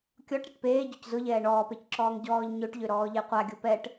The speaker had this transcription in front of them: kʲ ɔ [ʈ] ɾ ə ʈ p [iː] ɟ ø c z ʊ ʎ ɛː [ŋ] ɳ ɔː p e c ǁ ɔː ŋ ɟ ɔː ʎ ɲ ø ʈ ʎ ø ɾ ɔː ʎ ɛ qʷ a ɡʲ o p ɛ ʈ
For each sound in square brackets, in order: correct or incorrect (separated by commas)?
correct, incorrect, incorrect